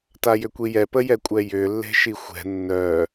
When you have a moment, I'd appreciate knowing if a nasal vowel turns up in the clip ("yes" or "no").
no